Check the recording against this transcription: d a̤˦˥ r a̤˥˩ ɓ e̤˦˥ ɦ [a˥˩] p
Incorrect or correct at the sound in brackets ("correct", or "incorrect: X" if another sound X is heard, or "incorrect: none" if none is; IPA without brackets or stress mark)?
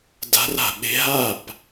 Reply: correct